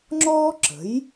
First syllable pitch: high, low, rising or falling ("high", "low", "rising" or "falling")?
high